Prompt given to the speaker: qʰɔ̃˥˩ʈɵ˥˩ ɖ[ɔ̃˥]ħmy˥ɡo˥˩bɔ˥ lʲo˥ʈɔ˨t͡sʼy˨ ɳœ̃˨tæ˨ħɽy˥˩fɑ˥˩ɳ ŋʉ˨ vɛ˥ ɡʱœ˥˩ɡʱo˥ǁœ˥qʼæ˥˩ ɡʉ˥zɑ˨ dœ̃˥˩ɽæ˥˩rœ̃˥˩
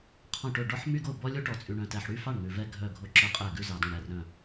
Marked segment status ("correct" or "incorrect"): incorrect